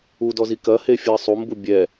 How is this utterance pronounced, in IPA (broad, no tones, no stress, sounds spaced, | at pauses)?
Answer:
u d ɔ z i k ɐ h e fʲ ɨ ə̯ sˤ u m b u bʲ ɛ